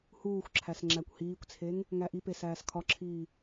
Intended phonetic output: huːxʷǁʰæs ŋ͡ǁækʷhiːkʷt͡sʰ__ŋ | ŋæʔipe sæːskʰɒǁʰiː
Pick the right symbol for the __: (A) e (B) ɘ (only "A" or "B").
A